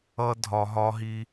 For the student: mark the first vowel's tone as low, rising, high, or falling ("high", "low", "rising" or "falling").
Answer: high